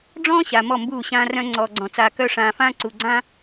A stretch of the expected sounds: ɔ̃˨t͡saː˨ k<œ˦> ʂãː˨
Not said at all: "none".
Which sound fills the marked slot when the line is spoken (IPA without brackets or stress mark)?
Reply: œ˦